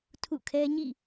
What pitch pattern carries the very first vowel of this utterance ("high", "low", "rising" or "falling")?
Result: falling